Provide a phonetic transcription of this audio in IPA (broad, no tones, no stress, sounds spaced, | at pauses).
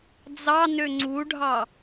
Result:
d͡z ɑ n ø ŋ͡ǀ u ɖʱ ɑ